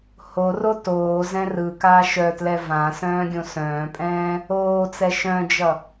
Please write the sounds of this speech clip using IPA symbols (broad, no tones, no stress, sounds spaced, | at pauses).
h o r o t oː z ɛ̃ r ɯ k aː ʃ œ t l ɛ v ã s œ̃ː ɡʲ õ s œ̃ː pʼ ɛ̃ː | oː t͡s ɛ ʃ œ̃ d͡ʒ ʌ